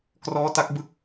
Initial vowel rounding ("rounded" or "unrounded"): rounded